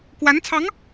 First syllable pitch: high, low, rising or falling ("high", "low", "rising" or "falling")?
rising